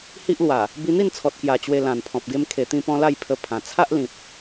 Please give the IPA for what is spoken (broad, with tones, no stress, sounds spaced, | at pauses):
h i˦ ʔ l w a˨˩ | b i˧ n̪ i˥˧ n t͡sʰ ɔ˨ t̚ k j a˨˩ t͡ɕ w e˧ l ã˨˩ n pʰ ɔ̃˨ p̚ ɡ e˧ m kʰ e˨˩ t̪ ĩ˧ p ɔ̃˧ l a˥˧ j pʰ ə˧ pʰ ã˨˩ t͡sʰ a˦ ʔ l ĩ˨ p̚